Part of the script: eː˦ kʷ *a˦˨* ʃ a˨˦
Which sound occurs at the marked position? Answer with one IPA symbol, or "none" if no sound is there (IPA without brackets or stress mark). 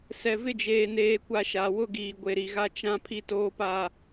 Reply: a˦